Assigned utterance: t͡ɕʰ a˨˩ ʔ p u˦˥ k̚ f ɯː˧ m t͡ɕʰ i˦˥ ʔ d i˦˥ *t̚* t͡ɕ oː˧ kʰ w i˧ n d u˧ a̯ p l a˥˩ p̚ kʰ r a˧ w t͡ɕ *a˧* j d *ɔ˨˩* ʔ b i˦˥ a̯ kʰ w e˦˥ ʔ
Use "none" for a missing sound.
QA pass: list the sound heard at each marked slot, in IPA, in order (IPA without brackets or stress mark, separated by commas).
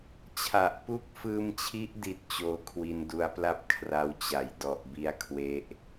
t̚, a˨˩, ɔ˨˩